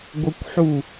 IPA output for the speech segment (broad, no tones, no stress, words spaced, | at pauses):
ɡʷəkʷħu